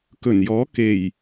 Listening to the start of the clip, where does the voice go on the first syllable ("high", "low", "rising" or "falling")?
low